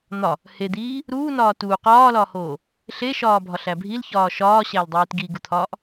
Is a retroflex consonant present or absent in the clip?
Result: absent